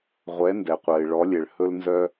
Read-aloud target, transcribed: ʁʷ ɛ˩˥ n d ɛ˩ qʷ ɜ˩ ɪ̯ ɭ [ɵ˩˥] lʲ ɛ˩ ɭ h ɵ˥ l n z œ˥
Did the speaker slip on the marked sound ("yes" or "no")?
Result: yes